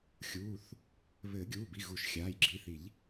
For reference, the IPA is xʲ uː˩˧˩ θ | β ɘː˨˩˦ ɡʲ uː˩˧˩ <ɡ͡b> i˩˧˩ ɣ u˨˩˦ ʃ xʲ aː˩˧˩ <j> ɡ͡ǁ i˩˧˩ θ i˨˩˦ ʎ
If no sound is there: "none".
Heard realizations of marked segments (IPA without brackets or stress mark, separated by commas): b, j